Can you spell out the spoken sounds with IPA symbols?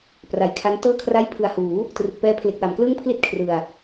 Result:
p r a˨˩ j kʰ a˦˥ n t ɤː˥˩ kʰ r a˥˩ j pʰ ɯ˨˩ a̯ h uː˩˦ | t r ɯ˨˩ k̚ p ɛː˦˥ pʰ l e˨˩ k̚ w a˩˦ m k l ɯː˥˩ ŋ pʰ l i˥˩ t̚ kʰ r ɯ˨˩ a̯

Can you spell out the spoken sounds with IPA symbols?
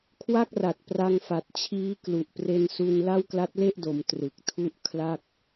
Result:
kʰ w a˥˩ k̚ r a˨˩ t̚ p r a˧ ŋ f a˨˩ t̚ t͡ɕʰ iː˦˥ k l u˨˩ ʔ p r e˧ n s u˧ n l a˥˩ w k l a˦˥ t̚ l e˥˩ ʔ d o˩˦ m t r ɯ˨˩ k̚ tʰ u˦˥ ʔ kʰ l a˥˩ k̚

